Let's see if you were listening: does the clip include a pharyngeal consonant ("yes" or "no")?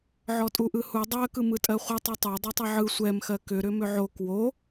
yes